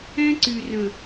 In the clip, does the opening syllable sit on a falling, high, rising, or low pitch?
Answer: high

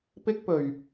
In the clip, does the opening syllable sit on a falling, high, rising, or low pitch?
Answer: high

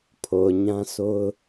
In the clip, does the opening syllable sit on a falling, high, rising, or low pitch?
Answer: low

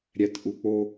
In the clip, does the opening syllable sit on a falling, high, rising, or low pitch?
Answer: low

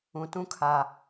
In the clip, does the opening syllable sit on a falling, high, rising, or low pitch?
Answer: low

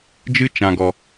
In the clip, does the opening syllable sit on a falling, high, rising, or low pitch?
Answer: high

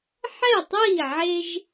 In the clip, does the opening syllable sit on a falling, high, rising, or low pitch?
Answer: falling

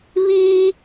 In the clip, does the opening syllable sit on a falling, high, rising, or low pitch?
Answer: high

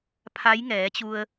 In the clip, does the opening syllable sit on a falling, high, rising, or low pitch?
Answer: rising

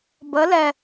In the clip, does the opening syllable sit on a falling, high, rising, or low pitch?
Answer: rising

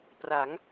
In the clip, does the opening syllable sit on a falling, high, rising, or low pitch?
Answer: rising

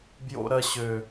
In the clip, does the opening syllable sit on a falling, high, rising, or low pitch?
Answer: low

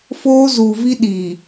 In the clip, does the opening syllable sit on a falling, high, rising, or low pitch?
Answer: high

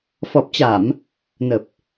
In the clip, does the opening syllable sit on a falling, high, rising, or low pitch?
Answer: low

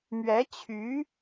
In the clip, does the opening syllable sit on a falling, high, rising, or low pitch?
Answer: rising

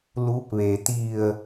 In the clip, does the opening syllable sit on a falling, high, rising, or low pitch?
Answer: rising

